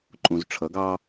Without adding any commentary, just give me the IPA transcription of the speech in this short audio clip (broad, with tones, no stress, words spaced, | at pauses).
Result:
ǃʼũ˨zʈ͡ʂʰʌ˨˦ɡɑ˦